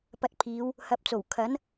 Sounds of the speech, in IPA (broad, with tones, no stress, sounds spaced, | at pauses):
p ɐ˧ t̚ pʰ iː˨˧ w | h ɐ˨˥ p̚ t͡s o˨˩ w kʰ ɐ˨˥ n